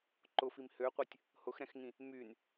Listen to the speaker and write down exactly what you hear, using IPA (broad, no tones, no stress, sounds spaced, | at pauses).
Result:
ǃ ʊ f i m h ø qʷ ɛ tʲ | h ʊ x ɾ ɛ̃ x ŋ ĩ | m y n